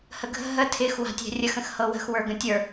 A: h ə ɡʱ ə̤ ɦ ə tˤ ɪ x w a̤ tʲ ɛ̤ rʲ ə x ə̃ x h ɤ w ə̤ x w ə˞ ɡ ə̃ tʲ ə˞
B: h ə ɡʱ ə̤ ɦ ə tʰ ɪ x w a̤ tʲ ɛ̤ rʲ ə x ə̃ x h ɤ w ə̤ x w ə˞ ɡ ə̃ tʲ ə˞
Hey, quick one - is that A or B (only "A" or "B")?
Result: B